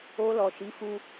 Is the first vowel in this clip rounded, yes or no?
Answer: yes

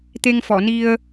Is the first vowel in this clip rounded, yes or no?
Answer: no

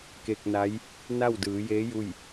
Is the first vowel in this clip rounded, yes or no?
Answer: no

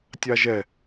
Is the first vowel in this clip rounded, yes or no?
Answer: no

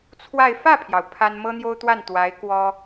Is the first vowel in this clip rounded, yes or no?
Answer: no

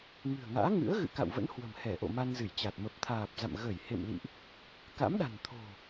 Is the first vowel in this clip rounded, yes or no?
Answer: no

